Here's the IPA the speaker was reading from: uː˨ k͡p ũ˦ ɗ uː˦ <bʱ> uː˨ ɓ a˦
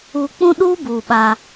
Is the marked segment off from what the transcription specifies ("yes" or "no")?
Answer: yes